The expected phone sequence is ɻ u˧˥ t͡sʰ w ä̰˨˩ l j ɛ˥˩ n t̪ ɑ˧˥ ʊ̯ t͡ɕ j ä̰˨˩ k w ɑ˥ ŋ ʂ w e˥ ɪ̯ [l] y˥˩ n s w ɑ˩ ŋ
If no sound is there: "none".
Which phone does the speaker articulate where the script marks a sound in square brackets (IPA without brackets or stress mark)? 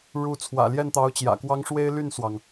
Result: l